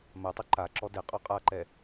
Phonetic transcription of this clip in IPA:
m ɜ tˤ u ǃ a ǁ ɔ d e qʼ ɔ qʼ a ǃ ɛ

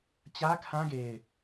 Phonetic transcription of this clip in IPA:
t͡ɕ ä˦ kʰ ã˦ ɡ e˨ ɪ̯

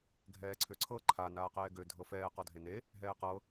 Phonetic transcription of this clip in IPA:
ɡʱ ɛː ǀʰ ø ǀʰ ɤ ǃʰ a n aː q ɛː ɡ ø dʱ ɤ f ɛː q ɔ dʱ e n e | ɦ ɛː q ɤ

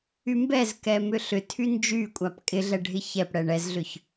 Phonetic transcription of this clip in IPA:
y m b ɛ z k ɛ m ʏ ɬ ʏ tʰ y n d͡ʒ y kʷʼ a p kʼ ɪ ɮ ɛ ɖʱ ɪ ç ɛ p ɽ ɛ ɳ ɛ z ɮ ʏ ç

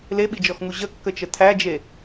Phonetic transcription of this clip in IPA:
l e ɓ i d͡ʒ ɔ x ŋ u ʑ ə kː ə t͡ʃ ə tʰ æ d͡ʒ e

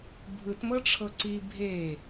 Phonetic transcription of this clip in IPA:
bʱ ɯ t m ɤ ʈ͡ʂʰ ɤ ǀ i bʱ e

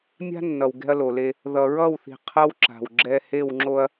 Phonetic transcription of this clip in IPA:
mʲ a̤˦ nː ʌ˨ w ɡ ɛ̤˦ ɐ̯ l o˨ l e˦ | ð ʌ˨ ɹ ʌ˦˨ w θ i̤˨ qʰ ʌ˦ w ǁ a̤˨ w ɡ͡ǁ ɛ˦ h e˦˨ w ŋ͡ǁ o˦ ɐ̯

